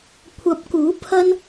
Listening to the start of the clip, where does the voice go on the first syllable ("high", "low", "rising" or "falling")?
rising